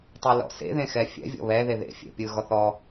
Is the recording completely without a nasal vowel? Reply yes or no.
no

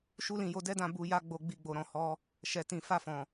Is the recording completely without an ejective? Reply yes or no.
yes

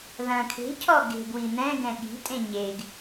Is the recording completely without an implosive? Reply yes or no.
no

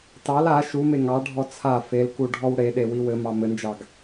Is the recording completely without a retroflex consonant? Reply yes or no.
no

